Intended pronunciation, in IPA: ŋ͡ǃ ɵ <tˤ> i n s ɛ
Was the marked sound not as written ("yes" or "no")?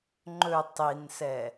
no